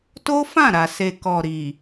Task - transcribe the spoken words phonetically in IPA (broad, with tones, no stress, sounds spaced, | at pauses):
t o˦ f ã˦˨ ɾ a˨ s e˨ k ɔ˨ ɾ i˨